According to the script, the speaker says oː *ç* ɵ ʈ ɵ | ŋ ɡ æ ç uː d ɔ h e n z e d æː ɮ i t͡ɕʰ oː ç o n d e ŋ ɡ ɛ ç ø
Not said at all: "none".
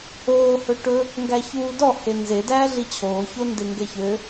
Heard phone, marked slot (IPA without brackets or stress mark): h